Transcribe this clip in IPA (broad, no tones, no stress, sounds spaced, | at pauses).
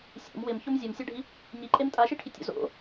sʲ ṵ m w ɪ m ç o m zʲ o m sʲ a ɖʱ i | ɲ i ǃʼ e m tʼ a ʃ i ʈʰ i tʲ o̰ z o̰